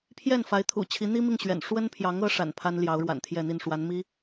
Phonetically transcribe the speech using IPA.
pʰ j ɛ˥˩ n f a˧˥ ɪ̯ t̪ʰ ṵ˨˩ t͡ɕʰ i˧˥ n̪ i˥ m i˥˩ ŋ ɕ ɥ ɛ̰˨˩ n ʂ w ə˥ n pʰ j ɑ˧˥ ŋ ɤ˧˥ ʂ a̰˨˩ n pʰ a˥ n l j ɑ˧˥ ʊ̯ ɻ w a̰˨˩ n t̪ʰ j ɛ˥˧ n̪ i˥˩ n ʂ w a˧˥ n m i˥

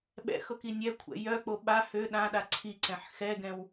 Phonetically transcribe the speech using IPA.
ɓ ɛ̰ x ɤ k i nʲ ɛ kʷʰ ɛ̰ j œ k͡p o ɓ a h ø ɗ ã ɗ a ǀʰ i ǀ ɛ̃ ħ x ɛ ɡ ɛ̃ w

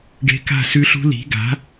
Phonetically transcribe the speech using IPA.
ɖ e̤˦˥ k a̤˥˧ s ʉ˦˥ ɬ ṳ˦˥ l i̤˩˥ ɡ a̤˩˥

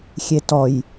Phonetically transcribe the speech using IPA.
xʲ e t ɔ j

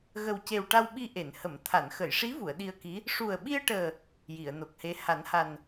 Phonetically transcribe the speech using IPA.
ɣ ə˨˩ w c e˨˩ w ʈ a˧ w ɓ i˧ ʔ e˨˩˨ n h ə˨˩˨ m t̪ʰ a˨˩˨ n x ə˨˩˨ j ʂ i˧˥ v u˨˩˨ ə̯ ɗ i˧ ə̯ k i˧˥ | ʂ u˨˩ ə̯ ɓ i˧ ə̯ ʈ əː˨˩ | j i˨˩˨ ə̯ n o˨˩ k̚ h e˧˥ h a˨˩˦ n h a˨˩ n

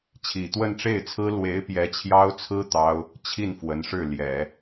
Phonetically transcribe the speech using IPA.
t͡ɕʰ i˨˩ t̪ w ə˥˧ n ʈ͡ʂ e˥˩ ɪ̯ t͡sʰ ɹ̩˥ l w e˧˥ ɪ̯ p j ɛ˧˥ t͡ɕʰ j ɑ˥ ʊ̯ t͡sʰ ɹ̩˥ t̪ ɑ˥ ʊ̯ | t͡ɕʰ i˥˩ n f w ə˧˥ n ʂ ɻ̩˥˩ l j ɛ˨˩˦

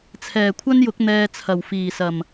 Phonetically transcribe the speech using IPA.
t͡sʰ ɛː˨˩ kʷʰ ɐ˥ n j ʊ˨˥ k̚ n̪ ɛː˧ t͡sʰ ɐ˨˩ w f iː˨˩ s ɐ˨˩ m

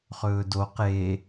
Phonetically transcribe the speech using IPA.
χ ɵː d o q e

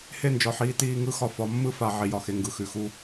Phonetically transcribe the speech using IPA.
h e˦˨ n d͡ʒ ɒ˨ ħ iː˨ t iː˦ ŋ ɯ˦ x ɒ˦ f ɒ˨˦ mː ɯ˦ f a˨ ʕ i˨ j ɒ˨ x e˨ ŋ ɡ ɯ˨ x ʉ˨ x u˦

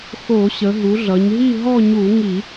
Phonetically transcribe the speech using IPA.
x o˧˩˧ ɕ ə˩˧ ɦ u˩˧ ɮ ʌ˩˧ ɲ ɦ i˥˧ ɦ ɔ˥˧ ɲ u˧˩˧ ŋ i˧˩˧

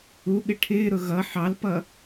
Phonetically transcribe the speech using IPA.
u ɠ ɪ ʈʰ ɪː ɾ ʊ ɣ ʌ ħ ɑ l p ʌ

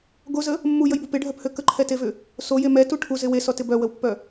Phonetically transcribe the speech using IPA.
ɡ o z ə | mː u j ə j b u p ɪ ɖʱ œ p h ø k ə ǃʰ ɛ t e v ʏ | s o j e m ɛ t u ʈʰ u z ɪ w e s ɔ t ɪ b œ w ə w pː œ

